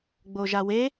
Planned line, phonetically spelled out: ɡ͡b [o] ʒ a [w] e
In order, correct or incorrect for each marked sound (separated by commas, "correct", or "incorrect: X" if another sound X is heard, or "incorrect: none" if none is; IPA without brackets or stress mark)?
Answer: correct, correct